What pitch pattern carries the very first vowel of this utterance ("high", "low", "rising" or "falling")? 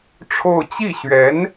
falling